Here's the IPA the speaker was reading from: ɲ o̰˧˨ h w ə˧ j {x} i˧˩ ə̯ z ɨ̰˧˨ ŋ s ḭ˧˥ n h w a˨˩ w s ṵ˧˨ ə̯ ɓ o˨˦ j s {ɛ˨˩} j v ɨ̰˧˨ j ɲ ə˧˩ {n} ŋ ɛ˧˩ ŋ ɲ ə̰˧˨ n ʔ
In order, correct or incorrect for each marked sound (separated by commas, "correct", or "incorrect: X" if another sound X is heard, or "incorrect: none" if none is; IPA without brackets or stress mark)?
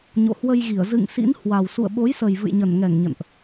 incorrect: ɣ, incorrect: ə˨˩, correct